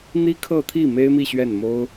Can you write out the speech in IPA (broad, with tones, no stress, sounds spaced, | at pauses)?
n̪ i˥ kʰ ɤ˥˧ t̪ʰ i˥˩ m e˥ ɪ̯ m i˥˧ ɕ ɥ ɛ˥˩ n m o˥ ʊ̯